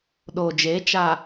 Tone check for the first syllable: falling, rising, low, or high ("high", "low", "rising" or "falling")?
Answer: low